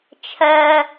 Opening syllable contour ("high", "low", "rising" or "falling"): low